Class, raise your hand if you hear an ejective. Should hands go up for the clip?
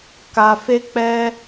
no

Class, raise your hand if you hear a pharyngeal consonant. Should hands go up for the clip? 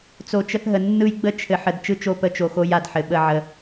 yes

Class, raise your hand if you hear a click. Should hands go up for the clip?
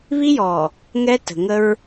no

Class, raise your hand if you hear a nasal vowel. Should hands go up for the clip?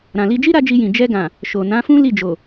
yes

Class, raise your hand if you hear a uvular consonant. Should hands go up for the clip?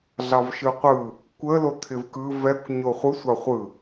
yes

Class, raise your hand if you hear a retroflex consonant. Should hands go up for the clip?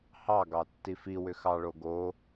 yes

